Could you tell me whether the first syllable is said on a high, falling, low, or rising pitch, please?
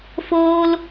high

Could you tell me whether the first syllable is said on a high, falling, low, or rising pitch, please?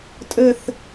falling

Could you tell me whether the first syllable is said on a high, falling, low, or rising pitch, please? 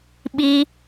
high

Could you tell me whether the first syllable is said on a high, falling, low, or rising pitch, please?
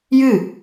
falling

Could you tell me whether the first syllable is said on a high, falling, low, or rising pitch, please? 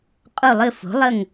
falling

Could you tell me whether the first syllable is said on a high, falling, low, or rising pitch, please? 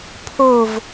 falling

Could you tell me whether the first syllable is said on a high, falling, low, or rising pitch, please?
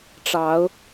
rising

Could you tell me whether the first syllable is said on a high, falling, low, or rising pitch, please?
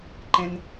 high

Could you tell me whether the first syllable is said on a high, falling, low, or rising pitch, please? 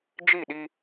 falling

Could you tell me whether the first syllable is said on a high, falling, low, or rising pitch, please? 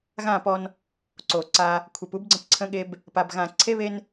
falling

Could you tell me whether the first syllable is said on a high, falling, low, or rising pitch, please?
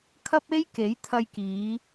high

